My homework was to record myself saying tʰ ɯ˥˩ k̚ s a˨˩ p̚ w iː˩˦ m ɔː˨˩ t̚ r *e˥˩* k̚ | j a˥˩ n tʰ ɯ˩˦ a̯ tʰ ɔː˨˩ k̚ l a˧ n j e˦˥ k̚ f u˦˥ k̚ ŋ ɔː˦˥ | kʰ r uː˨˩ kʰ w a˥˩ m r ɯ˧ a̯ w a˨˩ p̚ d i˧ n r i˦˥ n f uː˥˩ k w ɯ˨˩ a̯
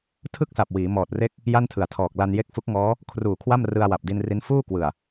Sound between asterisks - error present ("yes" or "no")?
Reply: no